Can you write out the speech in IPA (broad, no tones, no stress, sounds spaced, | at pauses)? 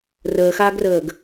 r əː x aː ɡ r əː ɡ